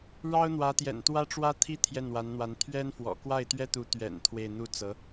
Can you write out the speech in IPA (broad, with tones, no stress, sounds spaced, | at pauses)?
ɻ ɑ˥ ʊ̯ n̪ w ä˧˥ t̪ j ɛ̰˨˩ n t̪ w ä˥ ʈ͡ʂ w ä˥ t̪ʰ i˥ t̪ʰ j ɛ˥˩ n w a˧˥ n n̪ w a˧˥ n t̪ʰ ɥ ɛ˥ n f w ɔ̰˨˩ k w a˥˩ ɪ̯ t̪ ɥ ɛ˥ t̪ u˧˥ t̪ ɥ ɛ̰˨˩ n t̪ʰ w e˥˧ ɪ̯ n̪ u˥˩ t͡s ɤ˧˥